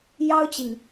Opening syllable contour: high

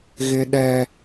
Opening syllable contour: high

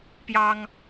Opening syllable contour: high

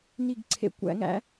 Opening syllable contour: falling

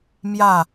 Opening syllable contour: falling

